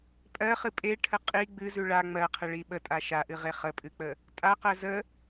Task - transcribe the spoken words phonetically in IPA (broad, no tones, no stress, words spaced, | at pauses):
pʼɜχɨ pʼeʈʰə qʼi ɡ͡bɨzʉ ɭa ŋ͡mɜqʰəɭi ɓətʼa ʃaʔɨʁe χəpʼɨk͡pə | tʼaqɜ zə